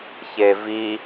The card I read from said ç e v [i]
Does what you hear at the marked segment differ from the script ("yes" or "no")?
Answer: no